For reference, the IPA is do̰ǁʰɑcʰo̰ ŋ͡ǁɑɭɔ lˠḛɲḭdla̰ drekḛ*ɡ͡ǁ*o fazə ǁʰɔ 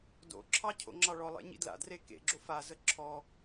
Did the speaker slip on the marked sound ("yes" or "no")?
no